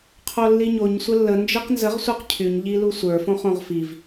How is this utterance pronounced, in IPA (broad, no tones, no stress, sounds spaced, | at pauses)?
qʰ o lː i ɲ o ɲ sʷ ə lː ə n d͡ʒ i q n z ə ʁ sʷ ə˞ q cʰ y ɲ ʎ i l u sʷ ə˞ f õ χ õ ʁ f i v